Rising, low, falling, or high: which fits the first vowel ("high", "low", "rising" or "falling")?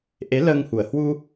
rising